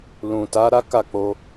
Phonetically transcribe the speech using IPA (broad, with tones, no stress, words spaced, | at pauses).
lũ˨ta˨˦ ɾa˦ka˦˨k͡po˧